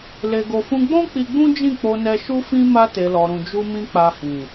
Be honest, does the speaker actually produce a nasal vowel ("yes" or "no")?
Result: yes